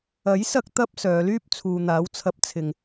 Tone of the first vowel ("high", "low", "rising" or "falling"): rising